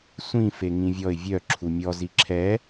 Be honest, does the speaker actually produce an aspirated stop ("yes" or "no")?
yes